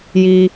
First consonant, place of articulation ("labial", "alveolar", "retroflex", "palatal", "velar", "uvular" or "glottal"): palatal